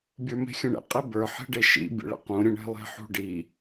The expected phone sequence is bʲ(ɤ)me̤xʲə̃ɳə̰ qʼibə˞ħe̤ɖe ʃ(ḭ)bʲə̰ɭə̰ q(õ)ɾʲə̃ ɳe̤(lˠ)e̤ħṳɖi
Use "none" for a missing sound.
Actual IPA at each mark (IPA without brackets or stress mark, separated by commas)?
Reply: ə˞, ḭ, ũ, lˠ